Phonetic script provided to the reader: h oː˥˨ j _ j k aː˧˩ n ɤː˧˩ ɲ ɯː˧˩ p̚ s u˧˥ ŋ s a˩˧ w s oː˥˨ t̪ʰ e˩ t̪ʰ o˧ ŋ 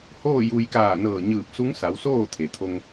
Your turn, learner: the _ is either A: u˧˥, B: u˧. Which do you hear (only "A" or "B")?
B